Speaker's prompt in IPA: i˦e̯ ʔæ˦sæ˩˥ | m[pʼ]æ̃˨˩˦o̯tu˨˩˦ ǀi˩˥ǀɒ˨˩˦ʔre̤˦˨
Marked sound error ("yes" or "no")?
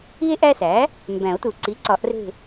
yes